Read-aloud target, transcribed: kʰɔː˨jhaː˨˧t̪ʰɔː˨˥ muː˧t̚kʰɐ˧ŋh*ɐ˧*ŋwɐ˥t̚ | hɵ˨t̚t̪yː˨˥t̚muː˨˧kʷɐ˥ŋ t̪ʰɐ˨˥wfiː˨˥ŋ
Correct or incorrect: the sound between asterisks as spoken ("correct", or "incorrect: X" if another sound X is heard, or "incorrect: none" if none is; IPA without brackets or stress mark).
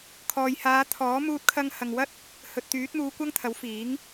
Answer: incorrect: ɐ˨